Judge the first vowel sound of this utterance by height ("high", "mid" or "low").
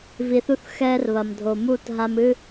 high